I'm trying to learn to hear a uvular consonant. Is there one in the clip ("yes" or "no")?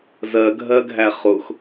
yes